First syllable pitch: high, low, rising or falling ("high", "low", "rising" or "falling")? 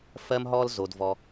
high